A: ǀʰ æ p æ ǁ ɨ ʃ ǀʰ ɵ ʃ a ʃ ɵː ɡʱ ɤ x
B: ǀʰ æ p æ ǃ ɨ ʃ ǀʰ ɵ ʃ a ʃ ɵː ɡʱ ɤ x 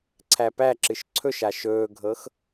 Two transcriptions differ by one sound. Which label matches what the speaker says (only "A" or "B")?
A